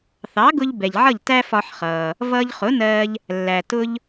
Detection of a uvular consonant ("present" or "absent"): present